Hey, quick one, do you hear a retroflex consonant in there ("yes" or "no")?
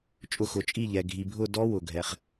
no